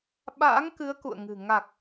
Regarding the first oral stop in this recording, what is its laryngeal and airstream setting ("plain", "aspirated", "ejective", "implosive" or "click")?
implosive